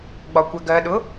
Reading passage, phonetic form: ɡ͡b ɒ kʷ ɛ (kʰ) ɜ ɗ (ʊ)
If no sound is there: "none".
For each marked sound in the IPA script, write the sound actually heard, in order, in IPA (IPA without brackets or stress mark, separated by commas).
ɡ, ʊ